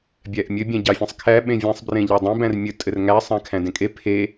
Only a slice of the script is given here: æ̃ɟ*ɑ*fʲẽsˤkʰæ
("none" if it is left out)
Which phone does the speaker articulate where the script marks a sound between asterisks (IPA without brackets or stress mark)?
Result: ɑ